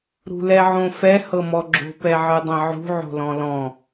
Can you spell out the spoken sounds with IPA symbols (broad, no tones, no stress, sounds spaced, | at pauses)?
ɾ ṳ l ɛ ʕ õ f ɛ h ɤ m ɔ ɡ͡ǁ o̤ p ɛ ʕ ɯ dˤ ɛ̃ ʕ ṳ ʕ o̤ l ɔ̃ l ɔ̃